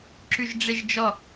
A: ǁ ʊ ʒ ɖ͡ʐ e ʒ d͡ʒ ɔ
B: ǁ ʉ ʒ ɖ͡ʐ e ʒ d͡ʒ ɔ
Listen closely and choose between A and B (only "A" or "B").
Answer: B